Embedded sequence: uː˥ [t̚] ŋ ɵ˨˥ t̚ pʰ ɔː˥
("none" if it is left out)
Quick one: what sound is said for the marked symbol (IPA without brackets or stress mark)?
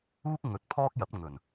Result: k̚